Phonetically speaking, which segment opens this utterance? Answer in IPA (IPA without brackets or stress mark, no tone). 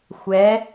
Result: xʷ